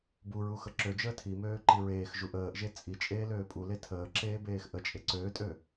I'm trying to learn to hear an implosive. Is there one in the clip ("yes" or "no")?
no